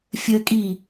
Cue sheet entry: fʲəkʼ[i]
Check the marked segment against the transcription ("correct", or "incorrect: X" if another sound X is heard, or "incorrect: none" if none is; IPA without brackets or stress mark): correct